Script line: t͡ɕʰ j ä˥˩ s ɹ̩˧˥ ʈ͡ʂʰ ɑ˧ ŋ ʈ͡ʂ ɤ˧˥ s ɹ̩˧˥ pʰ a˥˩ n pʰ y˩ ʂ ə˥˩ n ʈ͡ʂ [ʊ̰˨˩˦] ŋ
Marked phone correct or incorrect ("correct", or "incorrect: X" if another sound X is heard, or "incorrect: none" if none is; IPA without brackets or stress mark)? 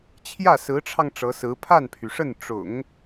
correct